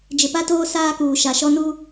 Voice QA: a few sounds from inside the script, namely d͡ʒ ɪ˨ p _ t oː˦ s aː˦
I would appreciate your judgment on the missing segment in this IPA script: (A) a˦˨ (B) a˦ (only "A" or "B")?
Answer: B